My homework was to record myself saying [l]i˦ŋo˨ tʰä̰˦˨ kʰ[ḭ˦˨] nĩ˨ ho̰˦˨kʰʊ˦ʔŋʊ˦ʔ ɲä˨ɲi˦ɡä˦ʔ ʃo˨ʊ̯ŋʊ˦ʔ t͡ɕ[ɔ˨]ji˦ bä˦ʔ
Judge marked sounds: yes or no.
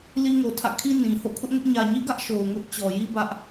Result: yes, no, yes

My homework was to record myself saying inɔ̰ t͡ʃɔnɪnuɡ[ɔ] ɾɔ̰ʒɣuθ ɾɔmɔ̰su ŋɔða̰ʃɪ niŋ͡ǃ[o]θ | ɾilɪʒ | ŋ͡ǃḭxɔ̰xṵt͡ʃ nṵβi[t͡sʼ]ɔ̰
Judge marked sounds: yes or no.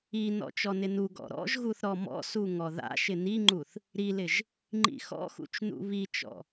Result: no, no, no

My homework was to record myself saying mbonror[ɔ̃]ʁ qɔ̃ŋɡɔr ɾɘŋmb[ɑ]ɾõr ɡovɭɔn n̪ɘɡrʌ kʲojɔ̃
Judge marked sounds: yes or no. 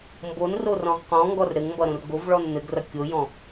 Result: yes, no

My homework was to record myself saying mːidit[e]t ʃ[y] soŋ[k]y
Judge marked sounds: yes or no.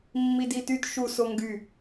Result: no, no, no

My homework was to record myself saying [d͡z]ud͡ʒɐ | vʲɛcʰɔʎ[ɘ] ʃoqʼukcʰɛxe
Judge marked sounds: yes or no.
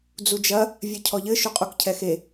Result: yes, yes

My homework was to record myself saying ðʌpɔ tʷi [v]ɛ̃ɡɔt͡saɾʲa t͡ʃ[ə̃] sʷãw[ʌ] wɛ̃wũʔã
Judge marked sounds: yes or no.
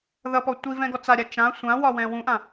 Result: yes, no, no

